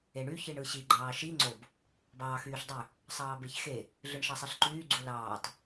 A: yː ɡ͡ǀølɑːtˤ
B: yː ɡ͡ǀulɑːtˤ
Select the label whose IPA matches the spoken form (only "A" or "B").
B